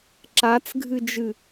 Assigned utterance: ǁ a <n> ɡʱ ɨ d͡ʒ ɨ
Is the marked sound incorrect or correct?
incorrect: t͡s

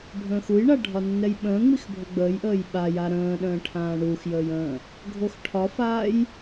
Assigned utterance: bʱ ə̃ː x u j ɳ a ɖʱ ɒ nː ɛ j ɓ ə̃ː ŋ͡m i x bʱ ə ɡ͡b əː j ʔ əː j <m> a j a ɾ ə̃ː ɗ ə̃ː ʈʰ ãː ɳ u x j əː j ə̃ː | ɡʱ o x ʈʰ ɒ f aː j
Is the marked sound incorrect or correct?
incorrect: ɓ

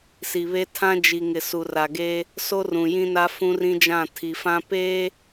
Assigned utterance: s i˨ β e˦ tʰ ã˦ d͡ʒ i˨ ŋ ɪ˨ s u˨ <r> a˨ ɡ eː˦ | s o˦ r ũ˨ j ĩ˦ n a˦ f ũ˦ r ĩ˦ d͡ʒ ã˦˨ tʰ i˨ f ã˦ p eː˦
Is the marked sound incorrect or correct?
correct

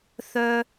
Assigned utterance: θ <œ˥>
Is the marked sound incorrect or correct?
correct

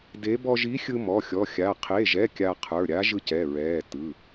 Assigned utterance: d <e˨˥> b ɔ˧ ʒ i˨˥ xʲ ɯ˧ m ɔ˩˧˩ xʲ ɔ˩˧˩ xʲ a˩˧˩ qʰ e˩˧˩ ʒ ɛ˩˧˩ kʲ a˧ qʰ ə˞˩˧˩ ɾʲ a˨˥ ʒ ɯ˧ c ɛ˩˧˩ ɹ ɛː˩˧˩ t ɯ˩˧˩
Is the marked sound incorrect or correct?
correct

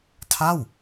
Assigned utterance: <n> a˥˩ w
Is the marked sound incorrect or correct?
incorrect: tʰ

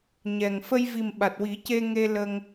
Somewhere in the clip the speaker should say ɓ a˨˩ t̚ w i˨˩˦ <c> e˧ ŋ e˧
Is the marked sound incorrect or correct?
correct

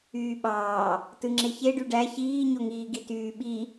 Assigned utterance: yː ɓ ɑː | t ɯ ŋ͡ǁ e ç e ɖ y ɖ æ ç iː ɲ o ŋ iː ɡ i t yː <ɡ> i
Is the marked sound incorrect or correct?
incorrect: ɓ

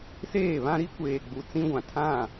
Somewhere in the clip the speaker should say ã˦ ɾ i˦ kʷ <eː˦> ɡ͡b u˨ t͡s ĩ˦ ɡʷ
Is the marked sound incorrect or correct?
incorrect: eː˨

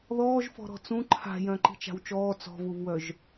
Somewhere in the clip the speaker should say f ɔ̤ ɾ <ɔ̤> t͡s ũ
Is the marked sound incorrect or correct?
correct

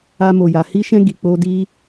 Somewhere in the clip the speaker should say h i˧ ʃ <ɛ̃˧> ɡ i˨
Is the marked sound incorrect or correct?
correct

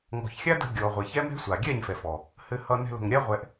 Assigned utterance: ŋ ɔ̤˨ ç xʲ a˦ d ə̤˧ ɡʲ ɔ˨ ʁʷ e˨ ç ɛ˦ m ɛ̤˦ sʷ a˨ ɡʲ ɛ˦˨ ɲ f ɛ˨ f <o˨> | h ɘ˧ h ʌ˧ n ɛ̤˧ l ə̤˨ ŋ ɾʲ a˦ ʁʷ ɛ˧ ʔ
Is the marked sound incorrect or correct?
incorrect: ɔ˨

